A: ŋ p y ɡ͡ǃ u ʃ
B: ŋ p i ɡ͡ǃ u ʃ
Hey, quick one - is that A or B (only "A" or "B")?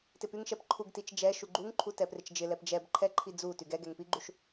B